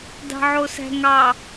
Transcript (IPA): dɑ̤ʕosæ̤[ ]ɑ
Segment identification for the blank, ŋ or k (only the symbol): ŋ